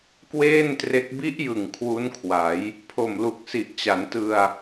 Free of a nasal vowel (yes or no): yes